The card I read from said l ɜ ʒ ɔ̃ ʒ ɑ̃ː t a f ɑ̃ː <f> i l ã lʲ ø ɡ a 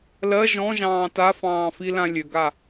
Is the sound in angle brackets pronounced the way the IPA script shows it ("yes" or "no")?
yes